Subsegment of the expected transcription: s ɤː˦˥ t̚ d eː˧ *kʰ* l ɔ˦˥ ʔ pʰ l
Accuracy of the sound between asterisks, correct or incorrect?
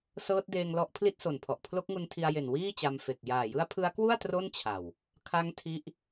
incorrect